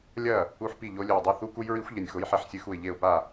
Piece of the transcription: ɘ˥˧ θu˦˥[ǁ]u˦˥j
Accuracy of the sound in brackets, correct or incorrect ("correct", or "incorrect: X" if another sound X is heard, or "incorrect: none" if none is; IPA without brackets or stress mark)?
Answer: incorrect: k